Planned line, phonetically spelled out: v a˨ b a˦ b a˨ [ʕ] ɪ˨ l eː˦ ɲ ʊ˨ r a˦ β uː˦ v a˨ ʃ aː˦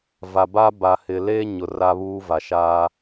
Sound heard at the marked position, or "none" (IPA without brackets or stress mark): h